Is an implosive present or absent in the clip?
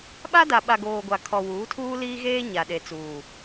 present